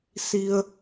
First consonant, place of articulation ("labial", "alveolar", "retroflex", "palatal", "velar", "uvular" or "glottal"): alveolar